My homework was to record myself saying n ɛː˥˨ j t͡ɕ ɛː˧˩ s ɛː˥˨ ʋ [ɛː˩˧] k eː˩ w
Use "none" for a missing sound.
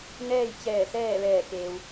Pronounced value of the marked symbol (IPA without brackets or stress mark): ɛː˧˩